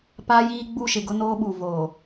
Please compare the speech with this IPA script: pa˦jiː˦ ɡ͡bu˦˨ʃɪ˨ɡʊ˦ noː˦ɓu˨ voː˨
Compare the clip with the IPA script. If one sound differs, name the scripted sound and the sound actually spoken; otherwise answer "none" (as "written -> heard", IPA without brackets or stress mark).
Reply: none